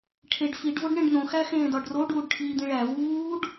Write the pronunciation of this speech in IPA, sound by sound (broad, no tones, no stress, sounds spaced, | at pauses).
ʈʰ e ɖ f i ɖ v o ɖ ɳ ẽ ɖ n̪ õ x æ x ẽː d ɒ ɖ r o ɖ uː ɖ ʈʰ iː d̪ ĩ ɭ æ v uː ɖ